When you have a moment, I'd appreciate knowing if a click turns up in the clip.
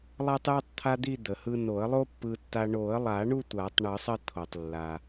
no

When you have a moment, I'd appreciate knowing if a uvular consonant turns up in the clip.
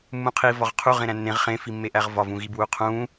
yes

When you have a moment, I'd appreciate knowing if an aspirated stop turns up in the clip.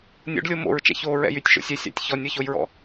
no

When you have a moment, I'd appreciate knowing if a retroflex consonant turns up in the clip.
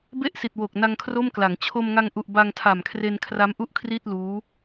no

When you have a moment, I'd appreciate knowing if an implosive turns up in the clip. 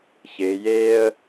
no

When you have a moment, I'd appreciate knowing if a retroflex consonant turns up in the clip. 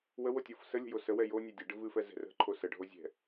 yes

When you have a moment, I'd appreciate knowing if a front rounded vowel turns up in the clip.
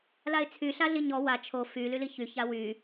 yes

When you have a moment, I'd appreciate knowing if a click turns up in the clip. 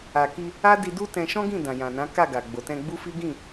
no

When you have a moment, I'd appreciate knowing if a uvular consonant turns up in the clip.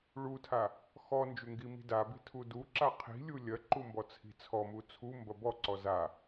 yes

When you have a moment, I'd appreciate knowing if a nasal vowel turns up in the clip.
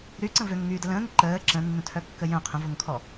yes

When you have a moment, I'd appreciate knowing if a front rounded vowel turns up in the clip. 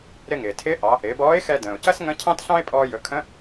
no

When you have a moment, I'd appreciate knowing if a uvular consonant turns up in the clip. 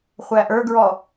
yes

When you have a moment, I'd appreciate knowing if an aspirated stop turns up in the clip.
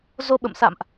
no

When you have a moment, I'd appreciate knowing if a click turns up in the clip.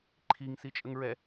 yes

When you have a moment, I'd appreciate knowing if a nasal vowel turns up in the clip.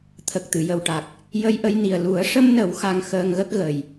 no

